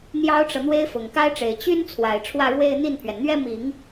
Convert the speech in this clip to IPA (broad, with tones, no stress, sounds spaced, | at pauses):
n̪ j ɑ˥ ʊ̯ ʈ͡ʂ ɤ˨ n̪ w e˥ ɪ̯ f ʊ˨˩ ŋ k a˥ ɪ̯ ʈ͡ʂ e˨˩ ɪ̯ t͡ɕ y˥ n t͡sʰ w a˨˩ ɪ̯ ʈ͡ʂʰ w ä˥˧ ɻ w e˥˧ ɪ̯ n̪ i˥˩ n pʰ ɥ ɛ˩ n n̪ ɥ ɛ˥ m i˨˩˦ ŋ